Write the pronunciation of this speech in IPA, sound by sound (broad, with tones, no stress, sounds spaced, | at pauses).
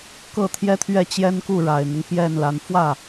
k ɤ˥˩ t̪ʰ j ɛ˥ t̪ʰ ɥ ɛ˥˩ t͡ɕ j ɛ˥ n k u˥˩ ɻ a˨˩ ɪ̯ n̪ ʊ˦ ŋ p j ɛ˥˩ n l a˧˥ n f w ä˥˩